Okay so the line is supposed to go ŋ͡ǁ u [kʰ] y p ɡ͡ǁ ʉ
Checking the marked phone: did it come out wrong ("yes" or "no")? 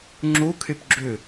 no